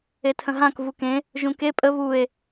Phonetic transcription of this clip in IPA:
etʰə̃ɦãk vukẽ | ʒũke pʼə βue̯

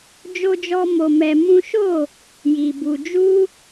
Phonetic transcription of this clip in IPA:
d͡ʒo˦d͡ʒɔ˦ mo˧mɛ˧ mũ˦ ʃo˦˨ | ji˨ bu˧ d͡ʒu˦

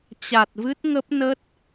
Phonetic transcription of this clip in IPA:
t͡ɕa˨˩t̚vɨ˦˥t̚ ŋə˦˥p̚nə˦˥t̚

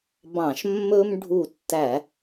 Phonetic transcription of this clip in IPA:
bɑ̃˧˩˧ʃmːɵ˦mɖʱu˧˩tːæ˧˩˧

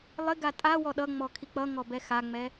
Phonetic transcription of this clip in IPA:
lˠɪɡa tʼa wɔɗʌŋ͡mɔ kʰik͡pʌŋɔ bɛxaŋ͡mɛ

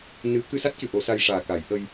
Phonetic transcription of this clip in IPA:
nɨ˨˩˦ kɨ˧sa˦˥t̚cɨ˨˩ ʔo˨˩˦sa˧jʂaː˨˩ ka˨˩˦jʔə˧j

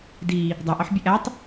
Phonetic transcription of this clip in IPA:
di | dˤæʔɒħ bʲeʔætˤ

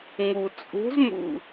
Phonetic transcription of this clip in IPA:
ŋu˨t͡sʼṳ˧˥zmṵ˦˨

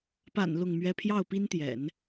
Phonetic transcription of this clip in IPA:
pa̰˨˩n lʊ˥˩ŋmɥɛ˥ pʰjɑ˥˩ʊ̯pi˥nt̪jɛ̰˨˩˦n

